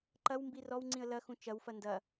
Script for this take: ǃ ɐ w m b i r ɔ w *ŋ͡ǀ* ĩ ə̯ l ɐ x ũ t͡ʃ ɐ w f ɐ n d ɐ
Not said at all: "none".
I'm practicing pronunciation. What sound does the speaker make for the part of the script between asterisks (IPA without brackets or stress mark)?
ŋ͡ǀ